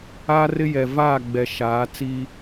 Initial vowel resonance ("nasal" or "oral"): oral